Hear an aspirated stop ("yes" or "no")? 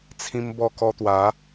yes